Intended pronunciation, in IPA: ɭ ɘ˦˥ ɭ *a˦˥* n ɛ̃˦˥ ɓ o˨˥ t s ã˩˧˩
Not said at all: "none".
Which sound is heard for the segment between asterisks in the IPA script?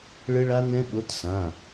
a˦˥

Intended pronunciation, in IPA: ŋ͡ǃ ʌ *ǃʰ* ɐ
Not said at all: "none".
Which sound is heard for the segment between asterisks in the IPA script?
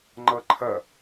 ǃʰ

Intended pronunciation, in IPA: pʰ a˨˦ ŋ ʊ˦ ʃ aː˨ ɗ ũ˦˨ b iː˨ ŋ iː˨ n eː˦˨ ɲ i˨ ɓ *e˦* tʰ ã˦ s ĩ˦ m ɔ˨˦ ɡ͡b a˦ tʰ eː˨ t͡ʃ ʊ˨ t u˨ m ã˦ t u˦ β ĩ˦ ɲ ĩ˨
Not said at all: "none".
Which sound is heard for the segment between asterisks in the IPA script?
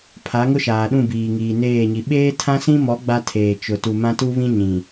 eː˦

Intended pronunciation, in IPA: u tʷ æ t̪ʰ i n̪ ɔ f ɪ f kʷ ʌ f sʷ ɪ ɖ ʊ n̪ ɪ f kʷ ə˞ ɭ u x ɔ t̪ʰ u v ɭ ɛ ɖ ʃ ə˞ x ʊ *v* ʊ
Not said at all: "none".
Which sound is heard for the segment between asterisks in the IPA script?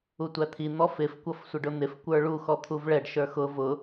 v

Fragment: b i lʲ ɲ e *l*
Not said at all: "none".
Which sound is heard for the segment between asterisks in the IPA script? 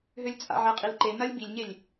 lʲ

